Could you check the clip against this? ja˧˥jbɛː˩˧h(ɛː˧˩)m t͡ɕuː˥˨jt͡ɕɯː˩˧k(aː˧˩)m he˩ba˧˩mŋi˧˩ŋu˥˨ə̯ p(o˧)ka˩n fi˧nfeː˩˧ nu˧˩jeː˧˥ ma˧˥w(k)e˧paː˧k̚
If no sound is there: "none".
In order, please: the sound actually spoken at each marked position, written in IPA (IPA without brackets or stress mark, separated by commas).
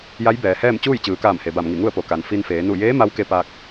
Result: ɛː˥˨, aː˧˩, o˩, k